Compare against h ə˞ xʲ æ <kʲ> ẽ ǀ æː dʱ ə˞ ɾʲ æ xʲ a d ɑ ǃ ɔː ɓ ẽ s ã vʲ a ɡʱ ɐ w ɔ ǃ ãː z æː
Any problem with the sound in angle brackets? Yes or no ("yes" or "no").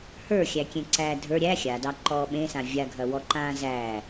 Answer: no